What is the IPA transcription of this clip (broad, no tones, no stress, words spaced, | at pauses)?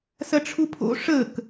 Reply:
sɐʈ͡ʂʰupʰo̰ ʂək